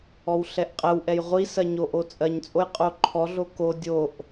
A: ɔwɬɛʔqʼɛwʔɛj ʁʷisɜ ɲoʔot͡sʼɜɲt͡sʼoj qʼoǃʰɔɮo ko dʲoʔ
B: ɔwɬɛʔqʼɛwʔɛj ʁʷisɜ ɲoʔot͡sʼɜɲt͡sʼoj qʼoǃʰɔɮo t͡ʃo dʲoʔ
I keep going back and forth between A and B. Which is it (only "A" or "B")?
A